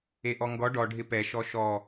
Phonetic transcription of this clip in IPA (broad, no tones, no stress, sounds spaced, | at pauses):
e ʔ ɔ ŋ ɡ ɔ ɖ ɔ ɖʱ ɪ p ɛ ʃ ɔ ʃ ɔ